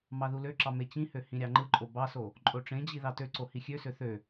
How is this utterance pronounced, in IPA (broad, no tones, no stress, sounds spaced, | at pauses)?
m ɑ ð u l ø ǁ ɑ m e t͡ɕ ĩ h ø h ĩ ɾʲ ɑ ŋ͡ǃ ɯ ǃʼ o b ɑ s o | ǃʼ o ʈ͡ʂ ẽ d͡ʑ i ð ɑ t ø ǀ o h i xʲ ø s ø θ ø